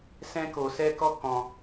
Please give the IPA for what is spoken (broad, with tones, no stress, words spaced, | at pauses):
sɛ̃˦ko˧sɛ˦ kɔ˦ kɔ̃˧